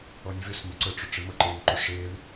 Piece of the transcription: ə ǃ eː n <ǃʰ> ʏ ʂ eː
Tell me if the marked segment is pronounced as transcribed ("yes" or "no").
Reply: no